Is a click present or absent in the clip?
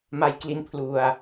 absent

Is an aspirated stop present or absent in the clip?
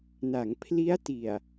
present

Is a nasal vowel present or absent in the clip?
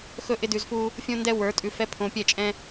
present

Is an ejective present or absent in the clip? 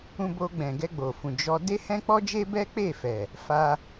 absent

